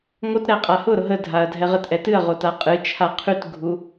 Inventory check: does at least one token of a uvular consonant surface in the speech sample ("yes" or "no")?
yes